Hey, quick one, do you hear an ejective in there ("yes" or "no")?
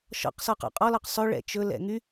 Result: yes